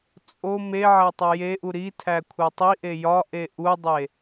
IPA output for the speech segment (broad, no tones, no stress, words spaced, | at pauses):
t͡sʼo me ʕætˤojeʔu ɾitʰæ kʷʰætˤiʔe jɒʔe ʔudˤe